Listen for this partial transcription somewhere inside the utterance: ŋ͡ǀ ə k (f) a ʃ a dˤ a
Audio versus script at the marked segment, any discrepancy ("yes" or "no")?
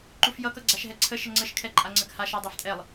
yes